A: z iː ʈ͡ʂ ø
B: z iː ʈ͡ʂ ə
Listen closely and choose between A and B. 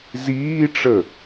B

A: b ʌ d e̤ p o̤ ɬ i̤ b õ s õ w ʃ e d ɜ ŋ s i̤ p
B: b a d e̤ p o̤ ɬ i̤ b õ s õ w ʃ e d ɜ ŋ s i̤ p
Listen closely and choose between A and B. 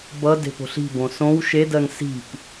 A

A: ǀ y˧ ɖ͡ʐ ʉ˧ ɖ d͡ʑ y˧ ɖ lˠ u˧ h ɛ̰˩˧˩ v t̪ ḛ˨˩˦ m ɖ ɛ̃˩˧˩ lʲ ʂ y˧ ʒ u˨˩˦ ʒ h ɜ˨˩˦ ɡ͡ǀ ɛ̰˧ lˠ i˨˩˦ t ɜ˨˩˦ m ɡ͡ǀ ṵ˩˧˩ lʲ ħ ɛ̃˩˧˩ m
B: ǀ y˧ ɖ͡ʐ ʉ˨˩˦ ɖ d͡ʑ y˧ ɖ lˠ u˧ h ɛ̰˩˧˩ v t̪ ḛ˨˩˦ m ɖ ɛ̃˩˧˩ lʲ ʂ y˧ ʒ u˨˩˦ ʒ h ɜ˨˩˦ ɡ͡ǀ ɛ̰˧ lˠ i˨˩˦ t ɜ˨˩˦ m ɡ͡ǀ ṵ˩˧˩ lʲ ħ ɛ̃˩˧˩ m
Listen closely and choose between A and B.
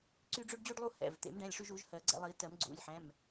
A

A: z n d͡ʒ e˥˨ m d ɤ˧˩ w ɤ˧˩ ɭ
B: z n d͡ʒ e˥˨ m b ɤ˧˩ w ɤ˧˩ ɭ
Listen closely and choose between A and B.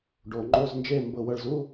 B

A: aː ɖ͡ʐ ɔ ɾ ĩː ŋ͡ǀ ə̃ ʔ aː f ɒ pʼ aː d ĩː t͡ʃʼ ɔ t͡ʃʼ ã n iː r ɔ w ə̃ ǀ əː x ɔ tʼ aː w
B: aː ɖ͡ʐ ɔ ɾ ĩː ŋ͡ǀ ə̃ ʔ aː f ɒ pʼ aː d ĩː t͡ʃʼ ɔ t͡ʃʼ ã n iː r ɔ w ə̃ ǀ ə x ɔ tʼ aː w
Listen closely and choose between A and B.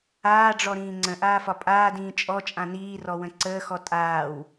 A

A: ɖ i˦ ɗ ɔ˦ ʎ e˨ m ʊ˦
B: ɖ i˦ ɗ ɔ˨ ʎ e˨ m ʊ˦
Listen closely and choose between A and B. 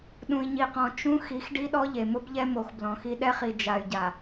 A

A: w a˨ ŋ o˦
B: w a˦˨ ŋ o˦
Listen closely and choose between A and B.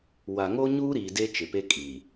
A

